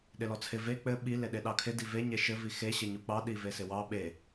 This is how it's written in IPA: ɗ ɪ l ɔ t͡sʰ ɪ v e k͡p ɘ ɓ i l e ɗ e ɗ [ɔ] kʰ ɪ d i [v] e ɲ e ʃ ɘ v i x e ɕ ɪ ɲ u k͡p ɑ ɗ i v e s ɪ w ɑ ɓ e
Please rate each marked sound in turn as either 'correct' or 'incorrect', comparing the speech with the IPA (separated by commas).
incorrect, correct